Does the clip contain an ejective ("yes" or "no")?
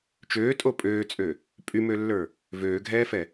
yes